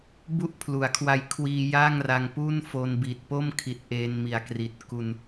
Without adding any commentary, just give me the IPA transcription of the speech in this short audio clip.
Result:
bu˥˩ʔpʰlu˩˦a̯kʰwa˦˥j kʰwiː˧ ja˥˩ŋra˧ŋ pu˥˩nfo˧n bi˨˩t̚po˥˩mkʰi˨˩t̚ ʔeː˧nmi˨˩a̯kri˨˩t̚ ku˧n

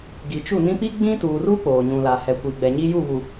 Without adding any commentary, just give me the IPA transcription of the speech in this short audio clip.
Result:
ɡi˨t͡ʃu˦˨nĩ˦ pi˦ɡ͡bĩ˦tuː˨ru˦ k͡poː˨ɲũ˨la˨ hɛ˨kʷiː˨ɡ͡bɛ˨ ɲiː˦ ju˦˨βu˨

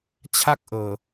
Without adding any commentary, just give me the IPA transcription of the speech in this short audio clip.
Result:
t͡ɕʰa˥˩k̚ʔɤː˨˩

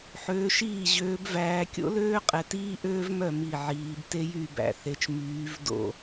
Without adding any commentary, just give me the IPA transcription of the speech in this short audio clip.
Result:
ħøː˨˦ʃiː˥˩ʑøː˨˦bvæː˨˦ kʲo̰˥løː˥qʼɛ˨ tiː˥ʔøː˥vmœ˥˩ mi˥˩ʕiː˨˦b te˥jy˥˩bæ̰˥˩θe˨˦t͡ʃ myː˨˦vdo̰˥˩

